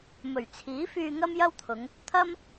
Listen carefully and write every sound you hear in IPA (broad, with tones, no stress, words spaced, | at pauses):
mɵ˨˩ɥt͡sʰiː˨˥fyː˧ ŋɐ˥mjɐ˥wt̪ʰʊ˨˧ŋ | t̪ʰɐ˥m